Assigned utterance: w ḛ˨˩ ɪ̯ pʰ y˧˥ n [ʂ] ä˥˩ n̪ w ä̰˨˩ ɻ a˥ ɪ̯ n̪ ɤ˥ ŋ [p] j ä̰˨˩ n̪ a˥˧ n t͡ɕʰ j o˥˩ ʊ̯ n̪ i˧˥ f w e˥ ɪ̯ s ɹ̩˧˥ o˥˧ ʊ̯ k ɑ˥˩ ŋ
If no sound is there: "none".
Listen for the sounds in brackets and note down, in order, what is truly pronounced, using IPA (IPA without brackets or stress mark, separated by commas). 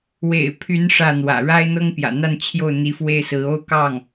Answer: ʂ, p